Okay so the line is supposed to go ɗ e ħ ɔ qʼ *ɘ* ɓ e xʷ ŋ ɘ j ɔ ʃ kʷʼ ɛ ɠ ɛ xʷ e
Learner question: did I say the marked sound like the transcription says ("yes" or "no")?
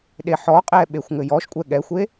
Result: no